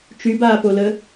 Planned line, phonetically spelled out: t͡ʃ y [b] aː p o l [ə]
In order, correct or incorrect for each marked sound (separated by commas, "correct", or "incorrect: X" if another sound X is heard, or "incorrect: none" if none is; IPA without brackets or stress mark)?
correct, correct